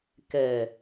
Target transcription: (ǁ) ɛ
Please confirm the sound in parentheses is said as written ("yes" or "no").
no